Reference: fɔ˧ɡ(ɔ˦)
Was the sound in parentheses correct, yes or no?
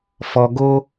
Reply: no